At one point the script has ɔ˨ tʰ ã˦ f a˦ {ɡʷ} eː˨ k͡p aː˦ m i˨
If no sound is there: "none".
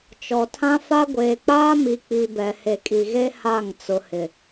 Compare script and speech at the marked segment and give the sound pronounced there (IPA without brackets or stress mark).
ɡʷ